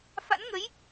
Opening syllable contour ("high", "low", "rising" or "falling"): rising